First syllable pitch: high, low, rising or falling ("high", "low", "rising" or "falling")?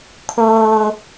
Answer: high